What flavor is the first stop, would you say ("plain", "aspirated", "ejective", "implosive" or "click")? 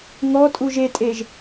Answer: ejective